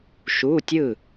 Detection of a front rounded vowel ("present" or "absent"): absent